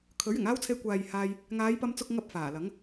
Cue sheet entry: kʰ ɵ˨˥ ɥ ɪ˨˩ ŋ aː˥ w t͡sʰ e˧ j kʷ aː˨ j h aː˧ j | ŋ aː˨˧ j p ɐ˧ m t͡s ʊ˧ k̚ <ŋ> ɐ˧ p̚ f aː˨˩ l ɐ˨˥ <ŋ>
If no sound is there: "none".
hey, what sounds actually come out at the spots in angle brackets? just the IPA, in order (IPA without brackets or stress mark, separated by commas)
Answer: ŋ, ŋ